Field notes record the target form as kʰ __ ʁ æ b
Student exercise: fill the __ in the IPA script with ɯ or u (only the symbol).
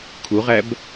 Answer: u